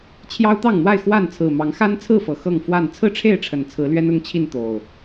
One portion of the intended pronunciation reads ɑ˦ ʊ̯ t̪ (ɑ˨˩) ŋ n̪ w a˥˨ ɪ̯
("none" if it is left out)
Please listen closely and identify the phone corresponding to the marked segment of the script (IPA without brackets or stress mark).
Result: ɑ˥˨